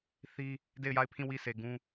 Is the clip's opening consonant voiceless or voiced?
voiceless